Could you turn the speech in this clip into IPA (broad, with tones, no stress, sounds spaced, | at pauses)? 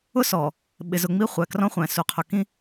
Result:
ʊ˦ s ɔ˨ | ɓ ɪ˨ z ʊ˨ ŋ͡m i˦ χʷ æ˨ k r ɔ̃˦ χʷ æ̃˨ s u˨ qʰ ʊ˨ k ĩ˦